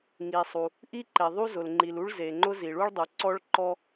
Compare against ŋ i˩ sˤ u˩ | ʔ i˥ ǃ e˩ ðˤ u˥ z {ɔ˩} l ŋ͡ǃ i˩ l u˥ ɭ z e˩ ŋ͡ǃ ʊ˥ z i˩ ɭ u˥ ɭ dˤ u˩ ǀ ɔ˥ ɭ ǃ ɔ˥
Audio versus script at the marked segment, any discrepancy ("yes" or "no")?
yes